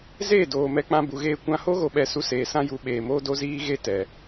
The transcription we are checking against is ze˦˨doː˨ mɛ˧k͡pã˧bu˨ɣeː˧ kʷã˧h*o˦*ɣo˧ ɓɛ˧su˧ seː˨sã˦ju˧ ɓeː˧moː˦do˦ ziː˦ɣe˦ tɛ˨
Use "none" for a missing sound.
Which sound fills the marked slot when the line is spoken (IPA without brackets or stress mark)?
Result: o˦